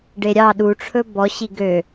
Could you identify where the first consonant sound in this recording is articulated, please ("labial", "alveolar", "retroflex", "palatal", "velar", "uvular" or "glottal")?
retroflex